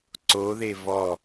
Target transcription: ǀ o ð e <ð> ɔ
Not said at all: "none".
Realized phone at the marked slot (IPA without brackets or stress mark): v